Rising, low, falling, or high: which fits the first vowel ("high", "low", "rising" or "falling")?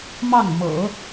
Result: falling